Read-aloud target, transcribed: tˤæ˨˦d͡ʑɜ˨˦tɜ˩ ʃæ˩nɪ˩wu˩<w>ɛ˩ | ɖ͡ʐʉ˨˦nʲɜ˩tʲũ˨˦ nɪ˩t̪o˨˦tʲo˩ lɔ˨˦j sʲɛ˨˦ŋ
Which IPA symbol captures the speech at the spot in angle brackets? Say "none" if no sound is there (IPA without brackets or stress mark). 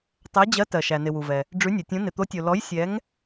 v